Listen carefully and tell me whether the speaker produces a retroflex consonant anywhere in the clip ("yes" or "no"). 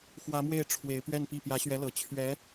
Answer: yes